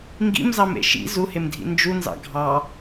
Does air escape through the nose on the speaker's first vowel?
no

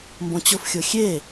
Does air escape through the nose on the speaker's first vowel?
yes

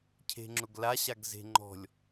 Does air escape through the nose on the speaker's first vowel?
no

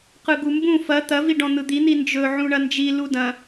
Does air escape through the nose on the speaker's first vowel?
no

